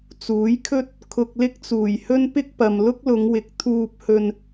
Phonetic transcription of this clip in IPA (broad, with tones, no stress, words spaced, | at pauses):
t͡suː˨˥jkʰɵ˥t̚ | kʰʊ˧k̚lɪ˥k̚t͡suː˨˩jhɵ˥n pɪ˥k̚pɐ˨m lʊ˥k̚lʊ˨˧ŋwɪ˨˥k̚ t̪ʰuː˧p̚hɵ˧n